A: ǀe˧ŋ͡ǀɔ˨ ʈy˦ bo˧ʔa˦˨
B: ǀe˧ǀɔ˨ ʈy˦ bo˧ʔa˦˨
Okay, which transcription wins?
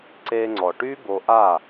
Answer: A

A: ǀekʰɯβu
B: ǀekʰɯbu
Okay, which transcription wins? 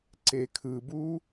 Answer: B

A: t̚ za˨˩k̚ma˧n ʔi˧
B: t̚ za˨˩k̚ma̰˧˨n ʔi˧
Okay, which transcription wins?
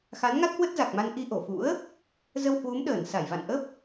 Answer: A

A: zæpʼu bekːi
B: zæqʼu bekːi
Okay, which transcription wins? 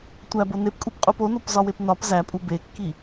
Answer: A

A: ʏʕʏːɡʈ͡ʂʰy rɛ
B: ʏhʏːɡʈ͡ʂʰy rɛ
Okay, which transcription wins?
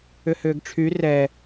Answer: B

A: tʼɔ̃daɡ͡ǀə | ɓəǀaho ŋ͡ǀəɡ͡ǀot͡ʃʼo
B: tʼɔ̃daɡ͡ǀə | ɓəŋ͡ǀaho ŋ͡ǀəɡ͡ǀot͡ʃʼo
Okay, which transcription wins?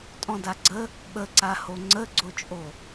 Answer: A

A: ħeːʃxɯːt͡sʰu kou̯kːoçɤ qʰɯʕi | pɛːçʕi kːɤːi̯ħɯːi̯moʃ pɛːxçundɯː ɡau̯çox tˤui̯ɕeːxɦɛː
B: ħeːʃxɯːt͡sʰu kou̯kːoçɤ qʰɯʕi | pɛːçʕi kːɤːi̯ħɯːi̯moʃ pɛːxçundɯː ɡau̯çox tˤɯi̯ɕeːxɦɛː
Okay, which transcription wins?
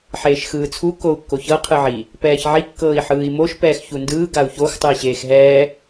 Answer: B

